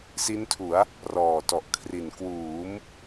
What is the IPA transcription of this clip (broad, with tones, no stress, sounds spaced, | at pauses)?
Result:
s i˦˥ n tʰ u˩˦ a̯ | r ɔː˨˩ t ɔ˨˩ ʔ kʰ r i˨˩ n k w uː˩˦ m